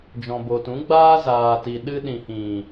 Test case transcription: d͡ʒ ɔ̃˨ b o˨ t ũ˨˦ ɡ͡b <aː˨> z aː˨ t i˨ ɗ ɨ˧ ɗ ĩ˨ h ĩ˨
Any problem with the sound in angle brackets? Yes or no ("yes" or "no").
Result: yes